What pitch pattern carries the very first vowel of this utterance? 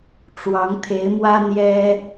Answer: rising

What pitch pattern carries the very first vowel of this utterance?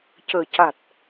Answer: low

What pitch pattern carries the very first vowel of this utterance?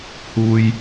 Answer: low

